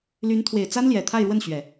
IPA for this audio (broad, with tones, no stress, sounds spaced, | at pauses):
l y˧˥ n t̪ʰ w e˨˩ ɪ̯ t͡s a˥ n l j ɛ˨˩ t̪ʰ a˥˧ ɪ̯ ɻ w ə˥˩ n ɕ ɥ ɛ˨˩˦